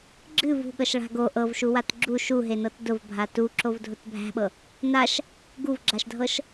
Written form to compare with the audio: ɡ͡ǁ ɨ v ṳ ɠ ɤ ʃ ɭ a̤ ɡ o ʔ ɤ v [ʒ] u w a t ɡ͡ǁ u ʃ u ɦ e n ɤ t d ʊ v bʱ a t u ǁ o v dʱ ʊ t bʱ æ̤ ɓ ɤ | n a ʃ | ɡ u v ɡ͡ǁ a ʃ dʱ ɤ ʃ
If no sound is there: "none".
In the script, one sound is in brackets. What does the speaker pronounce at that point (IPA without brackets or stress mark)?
ʃ